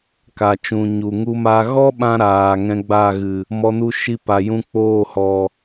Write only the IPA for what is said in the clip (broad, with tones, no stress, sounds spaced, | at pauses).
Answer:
k a˨ t͡ʃ ũ˨ ɲ u˨ ŋ u˦ m a˦ ɣ ɔ˦ ɓ ã˦ ɾ aː˨ ŋ ɛ̃˧ ɡ͡b a˦˨ ɣ ɨ˨ | m ɔ˧ n u˦ ʃ i˧ p a˨ j ũ˧ k͡p oː˦˨ h ɔ˨